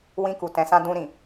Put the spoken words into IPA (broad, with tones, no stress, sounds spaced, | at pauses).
w ĩ˧ k u˨ t ɛ̃˨ s ã˧ d ũ˧ ɾ ĩ˨